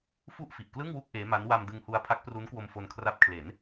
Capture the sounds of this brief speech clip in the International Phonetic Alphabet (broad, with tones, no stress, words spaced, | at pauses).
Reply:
fu˥˩ʔfi˨˩ʔklɯ˥˩ŋwu˥˩k̚ ʔeː˦˥ma˦˥n wa˧mdɯ˧ŋhu˧a̯ pʰa˦˥k̚pru˦˥nkwo˧m fo˧nkʰra˦˥p̚kʰle˩˦n